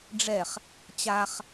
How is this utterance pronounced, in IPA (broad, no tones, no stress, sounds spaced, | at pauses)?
ɖ͡ʐ ɛ χ | t͡ɕ a χ